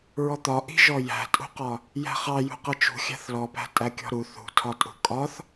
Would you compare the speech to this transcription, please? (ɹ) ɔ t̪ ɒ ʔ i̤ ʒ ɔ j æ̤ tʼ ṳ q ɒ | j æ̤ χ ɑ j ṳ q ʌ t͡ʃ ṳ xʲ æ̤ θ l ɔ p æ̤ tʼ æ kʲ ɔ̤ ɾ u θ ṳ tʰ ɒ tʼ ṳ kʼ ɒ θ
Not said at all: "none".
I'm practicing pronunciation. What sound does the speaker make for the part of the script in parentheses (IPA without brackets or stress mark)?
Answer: ɹ